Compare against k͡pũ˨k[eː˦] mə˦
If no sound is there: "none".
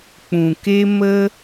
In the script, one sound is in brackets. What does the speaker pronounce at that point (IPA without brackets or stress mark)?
e˦